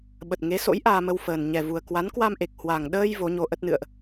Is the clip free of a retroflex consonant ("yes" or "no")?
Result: yes